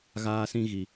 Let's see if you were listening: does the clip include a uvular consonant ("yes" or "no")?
no